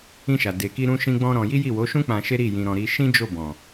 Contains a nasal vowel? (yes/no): yes